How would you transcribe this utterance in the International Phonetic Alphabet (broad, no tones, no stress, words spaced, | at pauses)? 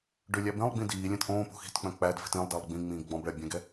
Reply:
ɖʏ lʲæbẽlˠɡ͡bĩ diːlʲɛ̃t ʔõː po̤xi̤tk͡pœ̃ k͡pædfi̤t ẽlˠdælˠ ɡ͡bĩ ŋ͡mĩːɡɡ͡bɔ̃bɭɛ bʲɛ̃ɡɛ